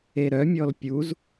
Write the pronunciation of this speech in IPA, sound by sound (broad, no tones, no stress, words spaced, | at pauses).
eɾœmʲɔl pʲuz